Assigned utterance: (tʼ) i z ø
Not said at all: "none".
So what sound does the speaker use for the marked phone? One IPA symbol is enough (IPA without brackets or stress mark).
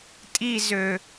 tʼ